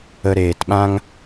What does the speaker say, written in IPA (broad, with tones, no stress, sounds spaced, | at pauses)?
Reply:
ə˧ ɾ eː˨ t ɓ ã˦ ŋ